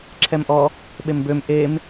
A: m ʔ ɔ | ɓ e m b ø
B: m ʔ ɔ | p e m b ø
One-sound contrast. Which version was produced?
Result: A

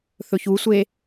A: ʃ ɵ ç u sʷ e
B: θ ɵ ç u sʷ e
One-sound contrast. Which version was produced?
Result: B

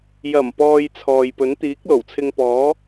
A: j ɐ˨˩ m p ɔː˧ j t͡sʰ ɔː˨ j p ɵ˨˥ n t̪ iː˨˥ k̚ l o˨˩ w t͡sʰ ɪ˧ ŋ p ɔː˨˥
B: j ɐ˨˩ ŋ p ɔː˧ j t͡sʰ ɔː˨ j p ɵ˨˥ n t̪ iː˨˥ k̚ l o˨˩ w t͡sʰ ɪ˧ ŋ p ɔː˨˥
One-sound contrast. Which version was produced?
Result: A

